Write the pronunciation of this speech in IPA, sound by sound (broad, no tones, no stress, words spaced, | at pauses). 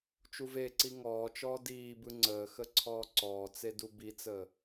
t͡ʃuveǀi ŋɔːt͡ʃɔː diːbɯ ŋ͡ǀəːxə ǀʰɔːǀɔːt͡se dubit͡səː